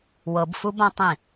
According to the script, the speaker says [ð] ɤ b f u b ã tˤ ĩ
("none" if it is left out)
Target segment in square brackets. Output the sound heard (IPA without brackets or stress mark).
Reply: w